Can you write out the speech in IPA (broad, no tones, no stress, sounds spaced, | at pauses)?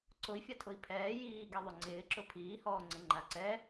ǀ ʊ i̯ fʲ a tʰ ʊ i̯ pʰ ɛː j iː ɡ ɛ ðˤ ʊ ŋ͡ǀ ɪː ǁ ʊ pʰ iː h ɔː ŋ͡ǀ ɪ ŋ͡ǃ a ǀ ɛ